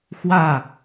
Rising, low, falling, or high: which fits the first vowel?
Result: falling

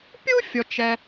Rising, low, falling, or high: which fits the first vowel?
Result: high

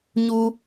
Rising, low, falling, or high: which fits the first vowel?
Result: high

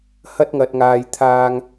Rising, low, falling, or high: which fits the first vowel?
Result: high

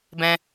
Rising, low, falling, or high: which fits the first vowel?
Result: high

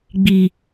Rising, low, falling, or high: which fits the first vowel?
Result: low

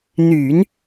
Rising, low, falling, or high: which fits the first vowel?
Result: low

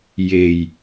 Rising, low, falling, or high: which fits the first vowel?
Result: low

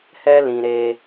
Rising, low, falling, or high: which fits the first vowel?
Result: high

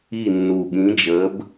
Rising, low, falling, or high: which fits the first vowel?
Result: falling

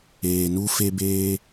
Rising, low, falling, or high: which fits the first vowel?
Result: low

